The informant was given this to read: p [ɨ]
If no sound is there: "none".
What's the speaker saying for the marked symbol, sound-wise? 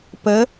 ə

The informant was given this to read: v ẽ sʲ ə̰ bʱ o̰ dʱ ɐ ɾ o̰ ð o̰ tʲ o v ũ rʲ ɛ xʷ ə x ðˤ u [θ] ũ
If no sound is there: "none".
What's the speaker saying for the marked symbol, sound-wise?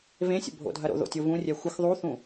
θ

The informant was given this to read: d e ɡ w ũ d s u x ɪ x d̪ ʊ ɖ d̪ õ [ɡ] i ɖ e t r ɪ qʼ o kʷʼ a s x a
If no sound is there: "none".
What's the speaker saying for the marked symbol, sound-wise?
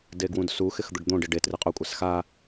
ɖ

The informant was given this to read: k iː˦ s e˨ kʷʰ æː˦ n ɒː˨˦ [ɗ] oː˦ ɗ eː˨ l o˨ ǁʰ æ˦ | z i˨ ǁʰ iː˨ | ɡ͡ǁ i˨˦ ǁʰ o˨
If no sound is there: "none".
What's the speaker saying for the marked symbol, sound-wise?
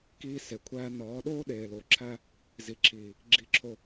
ɗ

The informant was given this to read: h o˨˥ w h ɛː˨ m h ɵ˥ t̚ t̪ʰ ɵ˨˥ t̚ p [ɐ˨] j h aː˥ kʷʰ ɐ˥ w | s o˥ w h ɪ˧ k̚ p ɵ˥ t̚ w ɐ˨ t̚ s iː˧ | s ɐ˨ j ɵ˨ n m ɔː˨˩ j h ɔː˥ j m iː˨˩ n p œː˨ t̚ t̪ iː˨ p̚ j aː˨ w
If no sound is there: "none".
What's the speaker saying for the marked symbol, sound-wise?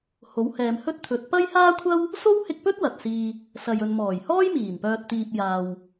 ɐ˥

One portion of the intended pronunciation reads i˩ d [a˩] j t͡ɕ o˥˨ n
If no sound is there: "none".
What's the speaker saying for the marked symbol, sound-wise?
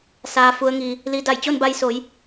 a˧˩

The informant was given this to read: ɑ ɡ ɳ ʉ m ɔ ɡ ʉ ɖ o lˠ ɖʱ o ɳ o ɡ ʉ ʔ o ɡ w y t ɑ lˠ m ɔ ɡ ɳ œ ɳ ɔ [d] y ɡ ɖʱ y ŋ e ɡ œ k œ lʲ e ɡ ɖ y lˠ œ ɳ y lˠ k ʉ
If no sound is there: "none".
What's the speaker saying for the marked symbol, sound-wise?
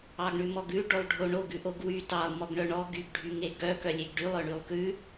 ɡ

